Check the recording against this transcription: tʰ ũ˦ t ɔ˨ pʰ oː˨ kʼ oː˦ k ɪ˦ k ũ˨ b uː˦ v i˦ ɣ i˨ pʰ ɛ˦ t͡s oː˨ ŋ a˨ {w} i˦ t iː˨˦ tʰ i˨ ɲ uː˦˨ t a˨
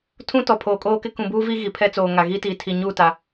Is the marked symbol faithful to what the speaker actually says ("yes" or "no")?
no